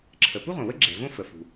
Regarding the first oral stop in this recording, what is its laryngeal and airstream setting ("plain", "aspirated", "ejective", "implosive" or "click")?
click